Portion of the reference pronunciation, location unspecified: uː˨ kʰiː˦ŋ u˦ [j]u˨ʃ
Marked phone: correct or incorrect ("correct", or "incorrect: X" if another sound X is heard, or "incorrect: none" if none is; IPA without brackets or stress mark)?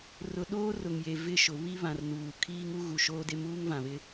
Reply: incorrect: ɣ